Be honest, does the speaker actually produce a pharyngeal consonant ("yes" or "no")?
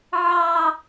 yes